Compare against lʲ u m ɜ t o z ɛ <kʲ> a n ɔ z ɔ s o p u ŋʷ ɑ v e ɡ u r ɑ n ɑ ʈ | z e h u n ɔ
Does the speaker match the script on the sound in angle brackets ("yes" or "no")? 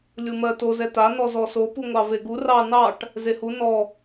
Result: no